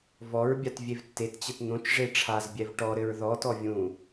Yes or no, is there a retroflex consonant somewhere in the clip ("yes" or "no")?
yes